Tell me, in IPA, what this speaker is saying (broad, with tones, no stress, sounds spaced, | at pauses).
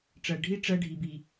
ʈ͡ʂ ɜ˨ ɖʱ i˦ ʈ͡ʂ ɜ˦ ɖʱ i˨ b i˨